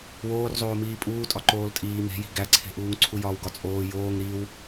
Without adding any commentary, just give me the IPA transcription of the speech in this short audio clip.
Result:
woːrzˤoːmiː pʼuːtʼɒ ǃoːltʼiː me̤ji̤ ɡæǀʰe̤ʔuːŋ ǀʰujɒːwɡɒt͡sʼoː joːŋ ɾiw

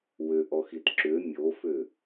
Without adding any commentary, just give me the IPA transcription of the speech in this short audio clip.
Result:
wʏʔɔxit ǁʏ mʲofʏ

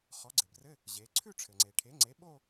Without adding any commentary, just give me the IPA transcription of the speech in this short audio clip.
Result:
χɔ˩˥ɡ͡ǀɘ˩brɘ˧˥˧ | ʑe˩˧ǀʰʉ˥˧ ʈ͡ʂʰɘ˩ŋ͡ǀe˩ʈʰe˩˥ŋ͡ǀe˩˥ ɓo˥˧

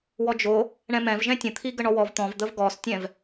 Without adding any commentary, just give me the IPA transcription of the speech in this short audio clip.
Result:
wɔd͡ʒo | ɳɛ̃mɛ̃vʒɛ̃ tʲə̃t̪ʰiɡə ɳɔwɔv t̪ɔ̃vd̪əv ɡɔstʲɛ̃v

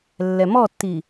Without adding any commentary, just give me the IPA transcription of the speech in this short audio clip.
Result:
lːɛmɔtːi

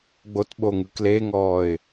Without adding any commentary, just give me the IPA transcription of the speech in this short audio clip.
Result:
ɡ͡botɓoŋɯ kleŋɔːɪ̯

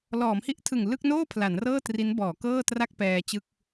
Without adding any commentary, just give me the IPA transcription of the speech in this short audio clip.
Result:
lɔː˩˦mhi˥˩ʔtʰɯ˨˩ŋ lɯ˥˩k̚noː˥˩ pʰla˩˦nrɤː˥˩ tri˦˥n bɔː˩˦kɤː˥˩tra˥˩k̚ pɛː˧t͡ɕɯ˥˩k̚

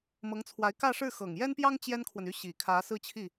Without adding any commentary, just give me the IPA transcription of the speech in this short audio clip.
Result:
mɤ˧˥ŋt͡sʰwa˧˥ɪ̯ kä˥˧ʂɻ̩˥˩ xɤ˨˩ŋjɛ˥npjɑ˥ŋ t͡ɕjɛ˥nkʰwə˨ny˥˩ ɕi˨˩kʰä˧˥ sɹ̩˥˧t͡ɕʰi˥˩

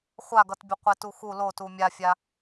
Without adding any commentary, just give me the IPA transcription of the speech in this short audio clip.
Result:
χʷaɡʌtbʲə qʷetuxu lo tumʲafʲa

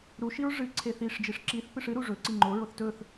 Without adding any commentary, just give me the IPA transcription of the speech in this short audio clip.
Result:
ɾuʃiɹ ʐɨ ǀʰeθiʂd͡ʒiʂ ǁiθpɨʂ ɨɾu ʐɵ ǀiŋ͡ǃoɹoθ tɵθ

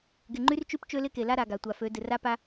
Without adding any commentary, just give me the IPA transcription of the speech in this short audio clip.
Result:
ɡɪ˨ŋ͡ǃy˦rt͡ʃy˦p t͡ʃø˦lɪ˦ke˨la˦ ɾa˨ɡa˨tʷa˨fø˨˦ dɪ˨ra˦pa˦

